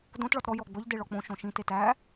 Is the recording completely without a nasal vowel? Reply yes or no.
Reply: no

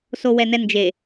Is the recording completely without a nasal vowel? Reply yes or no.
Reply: yes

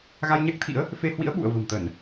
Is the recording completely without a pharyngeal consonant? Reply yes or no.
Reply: yes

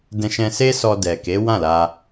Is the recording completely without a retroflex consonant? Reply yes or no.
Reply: yes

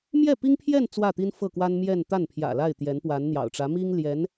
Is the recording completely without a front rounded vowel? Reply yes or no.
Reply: yes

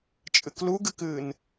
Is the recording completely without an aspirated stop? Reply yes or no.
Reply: yes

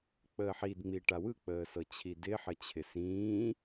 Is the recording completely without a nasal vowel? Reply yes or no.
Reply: no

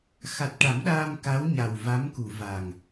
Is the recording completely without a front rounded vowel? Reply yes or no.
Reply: yes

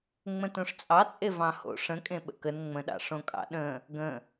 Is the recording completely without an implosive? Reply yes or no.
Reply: no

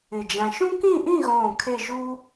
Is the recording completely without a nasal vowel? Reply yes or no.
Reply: no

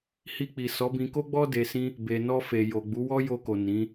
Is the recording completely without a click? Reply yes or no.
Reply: yes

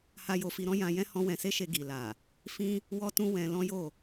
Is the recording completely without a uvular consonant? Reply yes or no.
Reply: yes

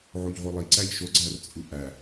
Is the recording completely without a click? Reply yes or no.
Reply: no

